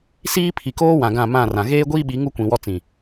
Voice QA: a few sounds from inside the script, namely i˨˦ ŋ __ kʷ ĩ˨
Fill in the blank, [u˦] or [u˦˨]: u˦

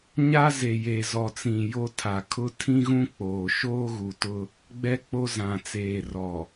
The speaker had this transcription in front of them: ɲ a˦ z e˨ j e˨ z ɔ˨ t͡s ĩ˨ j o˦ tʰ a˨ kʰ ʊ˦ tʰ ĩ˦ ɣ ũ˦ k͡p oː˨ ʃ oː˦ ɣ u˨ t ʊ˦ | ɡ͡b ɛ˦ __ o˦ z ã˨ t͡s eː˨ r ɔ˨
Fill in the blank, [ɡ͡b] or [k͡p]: k͡p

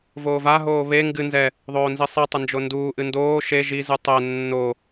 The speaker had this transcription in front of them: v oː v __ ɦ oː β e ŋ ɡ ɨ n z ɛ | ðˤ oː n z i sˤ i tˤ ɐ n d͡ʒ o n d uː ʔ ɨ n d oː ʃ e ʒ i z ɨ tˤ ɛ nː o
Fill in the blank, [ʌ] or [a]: a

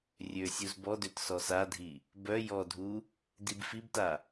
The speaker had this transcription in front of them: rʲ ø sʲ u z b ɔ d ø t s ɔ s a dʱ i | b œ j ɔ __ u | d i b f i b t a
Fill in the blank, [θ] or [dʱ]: dʱ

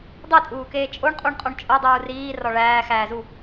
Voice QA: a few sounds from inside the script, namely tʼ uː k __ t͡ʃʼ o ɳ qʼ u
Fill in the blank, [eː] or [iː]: eː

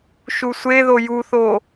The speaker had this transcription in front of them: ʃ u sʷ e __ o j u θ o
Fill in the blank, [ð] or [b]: ð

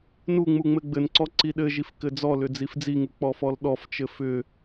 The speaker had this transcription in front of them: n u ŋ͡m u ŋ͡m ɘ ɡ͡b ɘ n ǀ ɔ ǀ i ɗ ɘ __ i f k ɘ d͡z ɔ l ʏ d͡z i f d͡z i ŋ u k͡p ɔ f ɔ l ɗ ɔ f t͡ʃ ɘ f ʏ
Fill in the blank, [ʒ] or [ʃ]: ʒ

